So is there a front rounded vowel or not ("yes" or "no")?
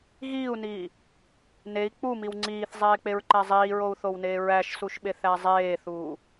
no